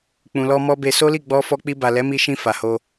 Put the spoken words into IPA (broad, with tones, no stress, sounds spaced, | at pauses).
k͡p ũ˨ l ɔ˧ m ɔ˦ b e˧ s o˦ l i˦˨ ɡ͡b ɔ˧ f ɔ˧ k͡p i˧ b a˨ l ɛ˨˦ m i˧ ʃ ĩ˧ f a˨ h o˧